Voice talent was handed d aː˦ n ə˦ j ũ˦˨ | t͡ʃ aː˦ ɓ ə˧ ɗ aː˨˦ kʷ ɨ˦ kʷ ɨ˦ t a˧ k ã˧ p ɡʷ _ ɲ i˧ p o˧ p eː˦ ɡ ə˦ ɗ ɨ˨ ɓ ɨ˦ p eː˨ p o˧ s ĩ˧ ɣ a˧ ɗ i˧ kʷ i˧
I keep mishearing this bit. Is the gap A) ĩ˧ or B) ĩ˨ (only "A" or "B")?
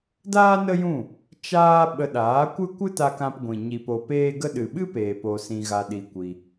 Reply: B